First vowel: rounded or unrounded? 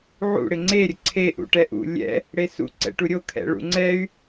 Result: rounded